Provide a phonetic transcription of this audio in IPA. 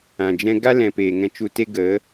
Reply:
ã˨ d͡ʒ ɛ̃˦ ɡ a˦ l ɛ̃˨ p eː˨ ŋ ɛ̃˧ t͡ʃ u˧ t e˦ ɡ ə˨˦

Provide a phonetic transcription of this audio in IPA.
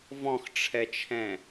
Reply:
v ɔ̃ x ʈ͡ʂʰ ɛ t͡ʃʰ ɛ̃

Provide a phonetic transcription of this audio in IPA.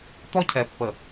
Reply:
t̪ ɔ˦ cʰ ɛ˨ pː ə˨

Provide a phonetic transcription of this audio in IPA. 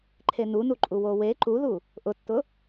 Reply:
ǃʰ e n u n u ǃʼ u w o w e ǃ u ð u | ʔ ʊ tː ʊ

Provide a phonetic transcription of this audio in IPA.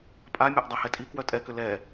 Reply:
pʼ a mʲ a ʔ dˤ a h ɛ tʼ i k w œ tʼ ɛ k ʏ l ɛ

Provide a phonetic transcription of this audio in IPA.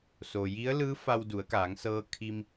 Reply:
s o˩ j i˧˥ ə̯ l ɯː˧˥ f a˧ w d u˩˧ ə̯ k aː˩˧ ŋ s ɤː˧ kʰ i˧ m

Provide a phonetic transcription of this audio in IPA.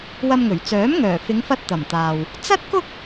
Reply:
w ɐ˧ m ŋ ɵ˨˩ ɥ t͡s œː˨˥ m ŋ œː˨˩ f ɪ˨˧ ŋ f ɐ˧ t̚ t̪ ɐ˨˩ m t̪ aː˨ w | t͡s ɐ˥ t̚ k ʊ˥ k̚

